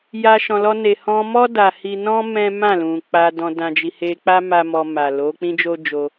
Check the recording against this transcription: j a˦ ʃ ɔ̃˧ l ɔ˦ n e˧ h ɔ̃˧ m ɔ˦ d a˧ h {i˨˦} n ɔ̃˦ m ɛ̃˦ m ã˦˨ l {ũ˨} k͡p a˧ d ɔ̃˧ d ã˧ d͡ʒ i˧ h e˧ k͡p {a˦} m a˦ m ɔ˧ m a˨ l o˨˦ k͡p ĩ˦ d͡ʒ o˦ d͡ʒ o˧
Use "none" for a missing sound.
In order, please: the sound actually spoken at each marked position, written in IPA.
i˦, ũ˨, a˦

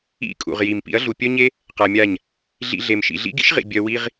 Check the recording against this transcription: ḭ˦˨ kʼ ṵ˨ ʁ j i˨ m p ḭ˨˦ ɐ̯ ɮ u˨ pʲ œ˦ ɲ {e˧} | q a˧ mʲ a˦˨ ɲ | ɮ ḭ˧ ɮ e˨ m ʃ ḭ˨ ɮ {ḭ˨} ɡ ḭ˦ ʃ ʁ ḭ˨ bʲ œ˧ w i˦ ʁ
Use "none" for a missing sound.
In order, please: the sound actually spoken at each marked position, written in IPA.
e˦, ḭ˦

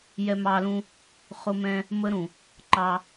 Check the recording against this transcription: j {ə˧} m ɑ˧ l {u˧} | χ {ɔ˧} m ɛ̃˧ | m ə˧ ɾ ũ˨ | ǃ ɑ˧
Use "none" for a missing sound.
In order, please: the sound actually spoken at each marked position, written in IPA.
ɛ˧, ũ˧, ʊ˧

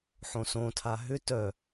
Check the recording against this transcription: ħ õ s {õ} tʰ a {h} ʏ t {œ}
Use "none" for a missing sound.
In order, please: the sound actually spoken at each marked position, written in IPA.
õ, ɦ, œ

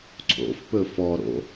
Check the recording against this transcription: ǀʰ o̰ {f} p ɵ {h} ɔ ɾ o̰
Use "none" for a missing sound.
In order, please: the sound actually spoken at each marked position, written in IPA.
f, f

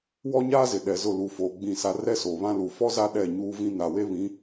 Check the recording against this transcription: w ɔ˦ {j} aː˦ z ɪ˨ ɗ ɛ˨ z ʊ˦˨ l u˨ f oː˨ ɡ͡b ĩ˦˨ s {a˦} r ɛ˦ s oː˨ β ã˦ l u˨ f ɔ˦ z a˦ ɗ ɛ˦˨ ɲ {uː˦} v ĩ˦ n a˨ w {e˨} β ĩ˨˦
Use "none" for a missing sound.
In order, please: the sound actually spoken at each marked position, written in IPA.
ɲ, a˦, uː˦, e˦

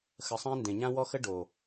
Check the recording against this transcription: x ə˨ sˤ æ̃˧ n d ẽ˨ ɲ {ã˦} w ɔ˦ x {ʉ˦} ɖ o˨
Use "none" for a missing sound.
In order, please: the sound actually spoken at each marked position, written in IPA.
ã˦, ə˦

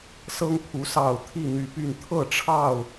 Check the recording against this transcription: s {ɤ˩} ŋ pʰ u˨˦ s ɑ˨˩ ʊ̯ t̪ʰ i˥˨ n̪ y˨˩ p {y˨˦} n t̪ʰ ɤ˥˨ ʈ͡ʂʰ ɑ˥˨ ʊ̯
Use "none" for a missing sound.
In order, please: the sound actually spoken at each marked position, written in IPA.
ɤ˦, y˥˨

